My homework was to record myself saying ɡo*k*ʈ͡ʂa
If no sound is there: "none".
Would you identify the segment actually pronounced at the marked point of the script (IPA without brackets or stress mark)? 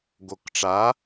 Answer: k